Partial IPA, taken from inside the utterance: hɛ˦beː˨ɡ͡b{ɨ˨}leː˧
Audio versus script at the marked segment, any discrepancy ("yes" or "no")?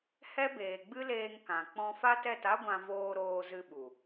yes